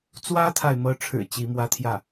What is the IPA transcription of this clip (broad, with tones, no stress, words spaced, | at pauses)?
t͡swä˥t̪ʰa˨ɪ̯mɤ˧˥ʈ͡ʂʰɻ̩˨˩ t͡ɕi˧˥mwä˥ t̪ʰjä˥˩